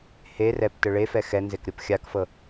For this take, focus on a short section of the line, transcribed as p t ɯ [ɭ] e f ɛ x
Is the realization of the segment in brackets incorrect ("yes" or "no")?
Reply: no